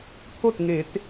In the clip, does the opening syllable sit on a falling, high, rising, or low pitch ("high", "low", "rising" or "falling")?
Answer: falling